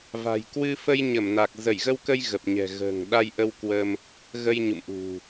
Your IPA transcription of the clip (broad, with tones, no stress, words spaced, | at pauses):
va̤˨˩jkwɨ˧ fə˧jɲə˧˩mna˨˩k̚ zə˧˩j ɣə˧wkə˧j ɣə˨˩p̚ɲɛ̤˨˩ɣə̤ː˨˩ŋ ɗa˧jʔə˧w kwə˧m | ɣə˧jɲṵ˧˨mʔṳ˨˩